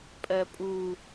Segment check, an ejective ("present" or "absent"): present